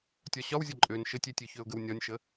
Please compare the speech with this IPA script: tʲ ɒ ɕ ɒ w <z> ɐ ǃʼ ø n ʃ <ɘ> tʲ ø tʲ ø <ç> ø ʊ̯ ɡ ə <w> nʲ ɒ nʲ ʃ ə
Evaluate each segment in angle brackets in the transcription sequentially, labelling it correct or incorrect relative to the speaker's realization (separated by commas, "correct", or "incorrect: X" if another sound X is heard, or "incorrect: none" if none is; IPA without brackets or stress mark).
incorrect: zʲ, correct, correct, correct